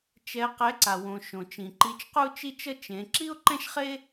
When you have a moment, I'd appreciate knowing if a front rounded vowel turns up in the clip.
no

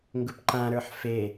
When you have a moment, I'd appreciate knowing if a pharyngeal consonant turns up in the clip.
yes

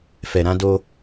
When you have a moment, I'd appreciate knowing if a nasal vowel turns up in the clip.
yes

